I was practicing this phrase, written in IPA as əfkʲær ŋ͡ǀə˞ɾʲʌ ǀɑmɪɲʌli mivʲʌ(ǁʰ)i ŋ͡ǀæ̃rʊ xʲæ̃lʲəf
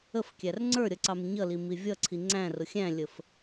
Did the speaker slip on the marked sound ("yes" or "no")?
yes